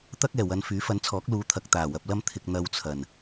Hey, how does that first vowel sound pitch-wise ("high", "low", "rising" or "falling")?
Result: high